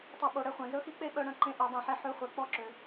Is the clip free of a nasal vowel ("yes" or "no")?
no